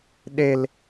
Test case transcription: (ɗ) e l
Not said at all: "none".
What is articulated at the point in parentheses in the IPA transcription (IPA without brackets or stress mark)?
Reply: ɗ